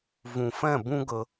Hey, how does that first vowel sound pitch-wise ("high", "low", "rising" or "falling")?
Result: low